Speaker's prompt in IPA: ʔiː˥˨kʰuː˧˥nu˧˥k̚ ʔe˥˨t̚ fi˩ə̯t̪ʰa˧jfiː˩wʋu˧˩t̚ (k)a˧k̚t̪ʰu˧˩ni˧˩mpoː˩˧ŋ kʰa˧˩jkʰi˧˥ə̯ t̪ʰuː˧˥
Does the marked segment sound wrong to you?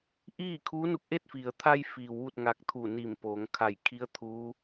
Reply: yes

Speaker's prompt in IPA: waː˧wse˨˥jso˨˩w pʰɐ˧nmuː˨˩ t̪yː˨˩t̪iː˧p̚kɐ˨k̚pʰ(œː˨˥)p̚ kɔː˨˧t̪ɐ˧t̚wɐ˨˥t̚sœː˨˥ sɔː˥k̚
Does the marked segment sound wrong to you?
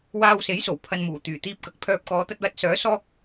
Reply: yes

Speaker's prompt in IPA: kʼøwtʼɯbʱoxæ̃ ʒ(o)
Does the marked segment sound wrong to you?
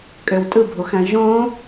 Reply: yes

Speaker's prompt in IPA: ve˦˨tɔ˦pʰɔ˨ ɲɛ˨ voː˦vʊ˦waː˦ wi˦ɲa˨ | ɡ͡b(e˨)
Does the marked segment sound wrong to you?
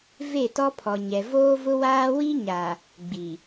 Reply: yes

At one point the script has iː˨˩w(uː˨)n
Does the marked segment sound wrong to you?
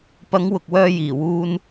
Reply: yes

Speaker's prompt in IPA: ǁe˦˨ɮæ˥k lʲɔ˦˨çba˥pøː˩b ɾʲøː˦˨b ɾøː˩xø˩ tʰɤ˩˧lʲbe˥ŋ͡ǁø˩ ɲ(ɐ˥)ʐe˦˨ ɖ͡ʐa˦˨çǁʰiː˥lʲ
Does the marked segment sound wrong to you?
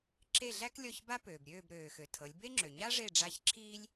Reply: yes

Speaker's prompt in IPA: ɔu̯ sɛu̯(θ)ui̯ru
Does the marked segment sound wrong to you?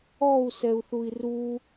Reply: no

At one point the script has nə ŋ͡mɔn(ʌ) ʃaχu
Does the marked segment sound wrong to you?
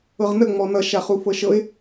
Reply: no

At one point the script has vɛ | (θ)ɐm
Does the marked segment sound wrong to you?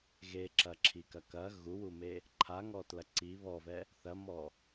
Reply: no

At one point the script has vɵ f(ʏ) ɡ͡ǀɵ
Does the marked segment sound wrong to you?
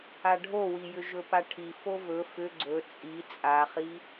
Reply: no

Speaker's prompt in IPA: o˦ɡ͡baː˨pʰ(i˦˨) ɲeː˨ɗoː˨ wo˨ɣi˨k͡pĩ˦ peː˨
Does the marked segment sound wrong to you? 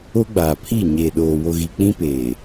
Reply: no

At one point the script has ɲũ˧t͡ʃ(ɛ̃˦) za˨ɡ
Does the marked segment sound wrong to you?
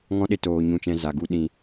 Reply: yes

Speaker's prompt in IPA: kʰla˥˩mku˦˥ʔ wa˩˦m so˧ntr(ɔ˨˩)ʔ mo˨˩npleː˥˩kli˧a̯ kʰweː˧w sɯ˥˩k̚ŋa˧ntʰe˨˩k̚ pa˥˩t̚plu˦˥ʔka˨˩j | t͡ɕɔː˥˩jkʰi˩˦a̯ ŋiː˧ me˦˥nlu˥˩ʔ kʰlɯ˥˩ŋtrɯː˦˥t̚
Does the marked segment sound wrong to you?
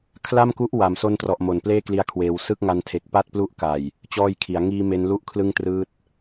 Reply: no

